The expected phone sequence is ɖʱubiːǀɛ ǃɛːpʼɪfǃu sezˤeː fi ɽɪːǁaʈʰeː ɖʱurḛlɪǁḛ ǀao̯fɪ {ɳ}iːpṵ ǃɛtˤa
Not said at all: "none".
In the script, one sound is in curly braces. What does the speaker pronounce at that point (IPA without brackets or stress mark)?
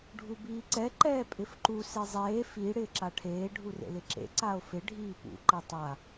ɖʱ